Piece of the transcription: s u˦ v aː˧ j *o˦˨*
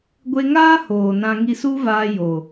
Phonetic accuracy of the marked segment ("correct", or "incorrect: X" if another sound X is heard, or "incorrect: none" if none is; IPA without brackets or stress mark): incorrect: o˨